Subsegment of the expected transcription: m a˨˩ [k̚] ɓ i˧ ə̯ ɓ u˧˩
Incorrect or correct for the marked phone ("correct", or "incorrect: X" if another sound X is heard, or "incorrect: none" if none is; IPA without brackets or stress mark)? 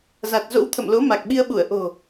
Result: correct